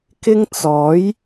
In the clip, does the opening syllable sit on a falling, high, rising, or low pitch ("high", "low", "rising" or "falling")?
high